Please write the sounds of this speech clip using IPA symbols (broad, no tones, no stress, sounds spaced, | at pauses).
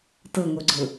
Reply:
t ɤ ŋ o ɡ͡ǀ ɤ